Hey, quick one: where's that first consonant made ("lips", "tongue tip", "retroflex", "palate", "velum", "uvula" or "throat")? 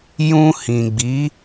palate